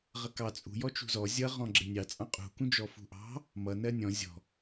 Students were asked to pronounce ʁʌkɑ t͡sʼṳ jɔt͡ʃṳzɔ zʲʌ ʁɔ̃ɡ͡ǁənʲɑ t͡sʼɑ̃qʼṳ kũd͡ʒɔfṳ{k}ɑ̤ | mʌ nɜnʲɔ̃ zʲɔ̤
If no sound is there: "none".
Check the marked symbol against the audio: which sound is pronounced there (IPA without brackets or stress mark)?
ʔ